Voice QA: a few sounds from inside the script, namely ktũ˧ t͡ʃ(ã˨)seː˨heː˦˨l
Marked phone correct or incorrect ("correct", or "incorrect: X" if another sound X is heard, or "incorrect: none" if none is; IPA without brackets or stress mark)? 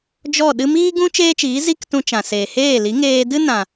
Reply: correct